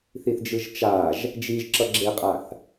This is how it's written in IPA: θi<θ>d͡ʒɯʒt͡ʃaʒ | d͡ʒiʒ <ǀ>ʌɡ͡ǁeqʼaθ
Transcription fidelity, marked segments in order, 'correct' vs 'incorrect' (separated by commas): correct, incorrect